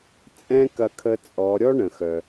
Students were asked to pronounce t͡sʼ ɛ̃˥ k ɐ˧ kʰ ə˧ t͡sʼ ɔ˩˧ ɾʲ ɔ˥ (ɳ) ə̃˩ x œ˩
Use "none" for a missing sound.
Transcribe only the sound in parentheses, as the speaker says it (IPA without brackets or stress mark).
ɳ